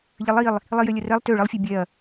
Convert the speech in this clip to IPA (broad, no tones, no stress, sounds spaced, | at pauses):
ʎ ə lˠ i lˠ | lˠ i j ø lʲ ə r ɛ lˠ t ø ɭ ə lˠ fʲ ø bʲ ɛ ɐ̯